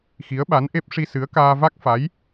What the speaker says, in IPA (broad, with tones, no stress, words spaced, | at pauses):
xi˧˥ə̯ɓa˧˥nʔe˦˥p̚ ʂi˧sɨ˧˥ə̯kaː˧ va˦˥k̚fa˧˥j